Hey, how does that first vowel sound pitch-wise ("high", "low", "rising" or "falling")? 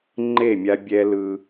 falling